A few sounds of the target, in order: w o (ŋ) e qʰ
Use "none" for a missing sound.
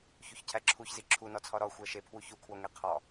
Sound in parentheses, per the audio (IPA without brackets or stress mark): ŋ